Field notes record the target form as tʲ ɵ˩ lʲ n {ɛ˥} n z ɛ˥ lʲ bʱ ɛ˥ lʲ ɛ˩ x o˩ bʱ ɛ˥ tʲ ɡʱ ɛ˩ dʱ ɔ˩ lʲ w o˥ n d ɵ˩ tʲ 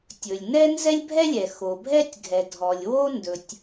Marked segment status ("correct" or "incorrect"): correct